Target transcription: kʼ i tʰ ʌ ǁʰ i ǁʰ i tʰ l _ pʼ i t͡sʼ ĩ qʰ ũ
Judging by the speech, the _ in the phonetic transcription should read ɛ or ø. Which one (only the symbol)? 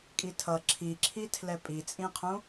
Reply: ɛ